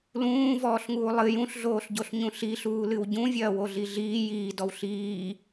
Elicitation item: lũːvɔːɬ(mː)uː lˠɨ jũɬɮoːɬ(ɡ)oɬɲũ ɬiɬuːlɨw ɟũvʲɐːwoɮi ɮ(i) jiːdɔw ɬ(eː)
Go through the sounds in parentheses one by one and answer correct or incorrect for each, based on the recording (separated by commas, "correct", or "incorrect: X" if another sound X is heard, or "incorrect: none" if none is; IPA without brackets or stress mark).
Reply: incorrect: ŋ, incorrect: ɟ, incorrect: iː, incorrect: iː